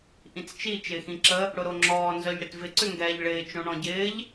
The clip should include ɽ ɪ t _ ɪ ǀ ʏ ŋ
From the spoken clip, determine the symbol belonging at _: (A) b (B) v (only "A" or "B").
B